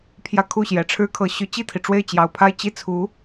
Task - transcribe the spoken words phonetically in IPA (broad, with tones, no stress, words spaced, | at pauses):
pʰjä˥˧kʰu˥˩ɕjɛ˨˩ ʈ͡ʂʰɻ̩˥kʰɤ˧˥ɕy˧˥ t͡ɕi˥˩t̪ʰi˩ʈ͡ʂwe˥˩ɪ̯ t͡ɕjɑ˨˩ʊ̯pʰa˥˧ɪ̯ t͡ɕi˥˩t͡sʰu˧˥